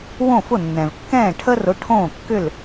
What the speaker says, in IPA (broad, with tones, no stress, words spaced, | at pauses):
wõ˥˩fʊ˥˩nːɛ̃˩vkːɛ̃ː˥˩ ʈʰə˥rʊ˩˥ ʈʰõː˥˩kːʏ˥˩l